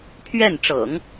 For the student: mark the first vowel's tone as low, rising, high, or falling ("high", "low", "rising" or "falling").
falling